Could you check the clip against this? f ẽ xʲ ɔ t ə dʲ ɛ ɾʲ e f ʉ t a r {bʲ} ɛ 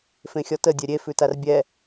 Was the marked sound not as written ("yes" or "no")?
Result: no